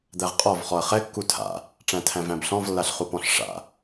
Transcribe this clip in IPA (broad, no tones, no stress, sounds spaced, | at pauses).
d̪ æ ʁ qʼ ɔ v χ ɔ ɐ̯ χ ɛ kː u tʰ a̰ | ʈ͡ʂ æ̃ tʰ æ̃ v æ̃ b ɬ ɔ̃ v lː a ɬ χ u p ɔ̃ ɬ ʂ a̰